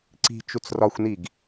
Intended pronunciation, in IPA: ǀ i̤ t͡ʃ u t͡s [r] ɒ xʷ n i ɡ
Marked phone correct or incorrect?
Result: correct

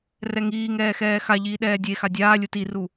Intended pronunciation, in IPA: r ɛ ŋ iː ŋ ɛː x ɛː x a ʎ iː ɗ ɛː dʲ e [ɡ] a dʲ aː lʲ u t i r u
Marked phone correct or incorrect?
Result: incorrect: x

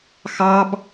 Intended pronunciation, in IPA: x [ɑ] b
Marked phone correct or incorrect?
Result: correct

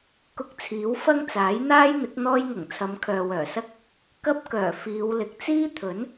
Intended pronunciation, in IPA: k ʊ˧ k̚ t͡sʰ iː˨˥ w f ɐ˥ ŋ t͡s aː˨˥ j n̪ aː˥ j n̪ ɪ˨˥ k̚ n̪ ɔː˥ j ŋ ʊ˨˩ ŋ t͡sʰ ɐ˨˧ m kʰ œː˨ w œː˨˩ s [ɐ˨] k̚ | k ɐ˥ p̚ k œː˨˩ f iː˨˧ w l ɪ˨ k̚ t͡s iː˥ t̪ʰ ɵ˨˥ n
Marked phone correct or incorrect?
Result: incorrect: ɐ˥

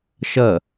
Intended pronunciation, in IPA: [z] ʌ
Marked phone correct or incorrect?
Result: incorrect: ʃ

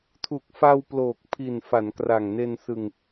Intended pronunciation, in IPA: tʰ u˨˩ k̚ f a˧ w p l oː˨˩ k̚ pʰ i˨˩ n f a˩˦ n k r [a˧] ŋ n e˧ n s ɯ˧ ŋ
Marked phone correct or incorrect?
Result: incorrect: a˨˩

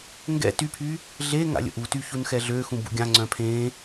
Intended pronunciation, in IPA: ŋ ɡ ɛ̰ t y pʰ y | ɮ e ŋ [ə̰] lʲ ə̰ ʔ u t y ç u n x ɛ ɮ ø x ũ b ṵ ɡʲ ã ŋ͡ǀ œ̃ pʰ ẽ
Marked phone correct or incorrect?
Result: incorrect: a̰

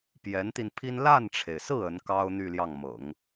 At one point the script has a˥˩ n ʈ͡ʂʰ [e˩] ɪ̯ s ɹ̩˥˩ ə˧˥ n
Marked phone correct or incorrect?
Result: correct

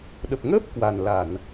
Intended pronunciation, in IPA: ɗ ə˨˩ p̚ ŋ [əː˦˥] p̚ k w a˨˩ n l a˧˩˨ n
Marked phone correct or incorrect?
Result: correct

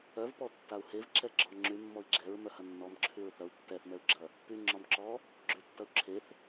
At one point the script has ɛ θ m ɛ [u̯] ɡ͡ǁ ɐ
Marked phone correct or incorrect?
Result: correct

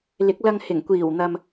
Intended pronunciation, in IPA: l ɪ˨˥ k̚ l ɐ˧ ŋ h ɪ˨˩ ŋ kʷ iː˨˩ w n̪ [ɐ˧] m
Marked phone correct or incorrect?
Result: incorrect: ɐ˨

